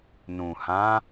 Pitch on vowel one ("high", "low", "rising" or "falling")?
low